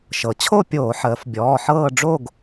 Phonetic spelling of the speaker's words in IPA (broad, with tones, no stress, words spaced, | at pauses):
ʃɤ˩˧ t͡ɕʰo˥˧pʲoː˧˩˧ħəː˩˧f bʲɔː˩˧˩ħɤː˥˧ ɖ͡ʐo˥˧ɡ